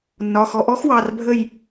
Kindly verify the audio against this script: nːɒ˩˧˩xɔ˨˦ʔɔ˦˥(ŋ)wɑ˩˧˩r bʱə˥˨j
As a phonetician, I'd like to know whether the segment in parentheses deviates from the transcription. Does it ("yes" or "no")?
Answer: yes